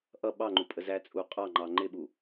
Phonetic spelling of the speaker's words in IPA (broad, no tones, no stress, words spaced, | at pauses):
ʔʌ ɓɑŋ͡ǃupʼə zæt͡sʼu qʼɑŋ͡ǃɑ ŋ͡ǃɪɓu